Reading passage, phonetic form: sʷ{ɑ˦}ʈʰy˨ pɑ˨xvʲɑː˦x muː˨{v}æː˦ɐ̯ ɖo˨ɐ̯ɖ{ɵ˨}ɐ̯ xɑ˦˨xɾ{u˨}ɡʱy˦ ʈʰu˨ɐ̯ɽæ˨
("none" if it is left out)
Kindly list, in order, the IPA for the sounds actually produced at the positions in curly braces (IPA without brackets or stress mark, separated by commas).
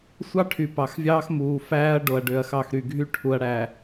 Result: ɑ˦, f, ø˨, y˨